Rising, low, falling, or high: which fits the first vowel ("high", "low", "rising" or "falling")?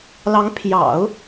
rising